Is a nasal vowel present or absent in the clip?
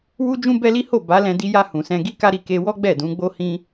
present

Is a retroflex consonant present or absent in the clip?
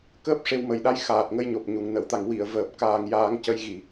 present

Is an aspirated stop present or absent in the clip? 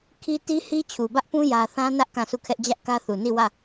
present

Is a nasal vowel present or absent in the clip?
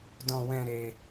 present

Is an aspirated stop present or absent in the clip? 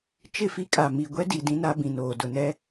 absent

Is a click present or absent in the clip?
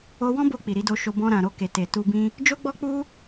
absent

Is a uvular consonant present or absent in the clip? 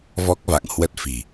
absent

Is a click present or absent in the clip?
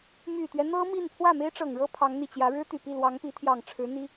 absent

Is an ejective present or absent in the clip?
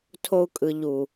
present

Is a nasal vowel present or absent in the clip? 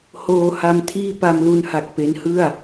absent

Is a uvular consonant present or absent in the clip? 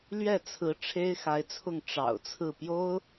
absent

